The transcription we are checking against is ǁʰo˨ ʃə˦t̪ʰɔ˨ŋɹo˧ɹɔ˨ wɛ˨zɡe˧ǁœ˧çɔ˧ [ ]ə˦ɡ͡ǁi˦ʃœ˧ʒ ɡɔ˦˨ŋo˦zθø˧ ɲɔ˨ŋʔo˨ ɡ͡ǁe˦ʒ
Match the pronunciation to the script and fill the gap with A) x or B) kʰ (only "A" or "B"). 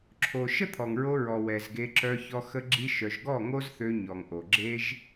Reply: A